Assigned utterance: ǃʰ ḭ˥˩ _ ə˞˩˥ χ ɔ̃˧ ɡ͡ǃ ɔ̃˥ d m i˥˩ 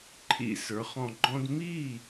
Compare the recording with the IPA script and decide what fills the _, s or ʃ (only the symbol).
s